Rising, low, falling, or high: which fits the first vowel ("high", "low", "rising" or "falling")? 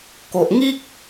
low